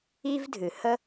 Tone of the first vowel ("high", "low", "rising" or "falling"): high